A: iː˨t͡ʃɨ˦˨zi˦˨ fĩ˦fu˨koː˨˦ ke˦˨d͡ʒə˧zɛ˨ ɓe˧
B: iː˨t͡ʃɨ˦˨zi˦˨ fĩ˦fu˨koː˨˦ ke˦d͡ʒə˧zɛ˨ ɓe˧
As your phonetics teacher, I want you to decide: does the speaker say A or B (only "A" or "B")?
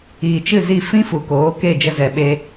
A